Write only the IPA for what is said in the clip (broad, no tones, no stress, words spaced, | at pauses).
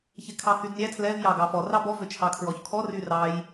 çekʰɑhydnʲæ tʰlɛv jɑɡɑfɔ rɑbɔ vøt͡ʃʰɑkʰɹɔçkʰɔ ryrɑj